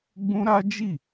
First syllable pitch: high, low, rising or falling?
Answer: high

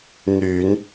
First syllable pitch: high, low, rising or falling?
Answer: low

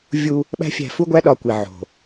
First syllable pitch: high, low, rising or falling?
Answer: high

